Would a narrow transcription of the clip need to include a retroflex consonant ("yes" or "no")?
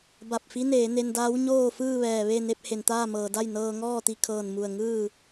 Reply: no